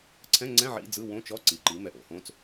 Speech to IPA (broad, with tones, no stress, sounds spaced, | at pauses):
ǀʰ ɛ̃˧˥˧ ŋ͡ǀ ɛ̃˧˥˧ ʕ ḭ˧˥˧ d͡z ɯ˧˥˧ w õ˧˥˧ t͡ʃ ɔ˧˥˧ ǀ i˩˧ ǃ i˩˧ m ɛ˧˥˧ ʔ o̰˧˥˧ h õ˧˥˧ t͡s